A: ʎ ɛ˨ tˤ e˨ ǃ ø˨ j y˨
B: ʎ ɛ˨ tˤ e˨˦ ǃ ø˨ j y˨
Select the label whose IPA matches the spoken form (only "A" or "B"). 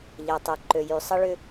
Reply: A